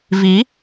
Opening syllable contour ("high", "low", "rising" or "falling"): rising